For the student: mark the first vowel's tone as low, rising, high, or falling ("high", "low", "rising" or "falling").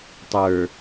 low